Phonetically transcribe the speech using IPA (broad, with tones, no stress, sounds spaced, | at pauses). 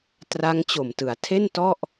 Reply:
t r a˦˥ ŋ t͡ɕ o˨˩ m t ɯ˩˦ a̯ tʰ e˥˩ n t ɔ˥˩ ʔ